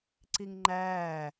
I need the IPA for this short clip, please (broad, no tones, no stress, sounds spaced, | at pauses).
ǀ i ŋ ŋ͡ǃ æː